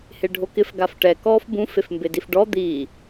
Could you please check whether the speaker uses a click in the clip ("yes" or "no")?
no